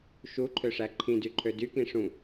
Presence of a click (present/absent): present